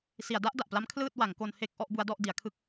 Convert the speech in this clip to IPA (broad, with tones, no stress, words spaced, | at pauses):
si˩˦a̯da˦˥ʔda˨˩ʔpla˦˥m kʰlɯː˥˩t̚wa˩˦ŋko˧n he˦˥k̚ ʔɔ˦˥ʔbu˦˥a̯ dɔ˥˩ʔdi˩˦a̯kʰɯ˥˩k̚